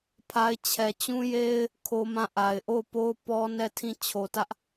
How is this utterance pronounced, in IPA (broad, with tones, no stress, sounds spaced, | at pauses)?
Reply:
pʰ a˦ ɪ̯ t͡ɕʰ ɛ˨ t͡ɕ ũ˦ j e˦ ɪ̯ | kʰ o˦ m ã˦˨ ʔ a˨ ɪ̯ ʔ o˦˨ ʊ̯ p o˦ ʊ̯ p ɔ˦ n ɛ˦˨ tʰ ĩ˦˨ t͡ɕʰ o˨ t ä˦ ʔ